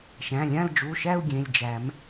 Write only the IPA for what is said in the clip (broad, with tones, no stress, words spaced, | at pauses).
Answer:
ʃæ̃˩˧˩lʲã˦˨ld͡ʒu˩˧˩ʃæ˦˨u̯ ɡʲẽ˩˧˩lʲd͡ʒæ˨˩˦m